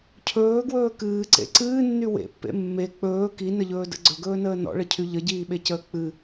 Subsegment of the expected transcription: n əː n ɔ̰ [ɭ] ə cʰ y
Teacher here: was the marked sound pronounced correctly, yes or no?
yes